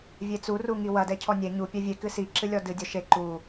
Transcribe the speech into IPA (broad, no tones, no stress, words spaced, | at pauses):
vʲet͡su ruŋiwɐ dɛcʰɔnʲɛ ɲu pʲɛvʲe kɨsi ǁɨlʲɔdɨ dʲɔʃe ǃu